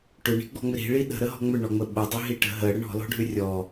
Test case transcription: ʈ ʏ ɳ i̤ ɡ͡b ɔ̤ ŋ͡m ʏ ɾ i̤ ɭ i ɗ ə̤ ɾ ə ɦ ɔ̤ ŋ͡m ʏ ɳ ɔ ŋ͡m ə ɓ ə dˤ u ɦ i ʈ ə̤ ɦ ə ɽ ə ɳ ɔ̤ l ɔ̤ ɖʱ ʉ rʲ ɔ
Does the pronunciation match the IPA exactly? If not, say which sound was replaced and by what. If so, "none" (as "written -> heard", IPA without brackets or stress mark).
u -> ʏ